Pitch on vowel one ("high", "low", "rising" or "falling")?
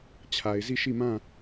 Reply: low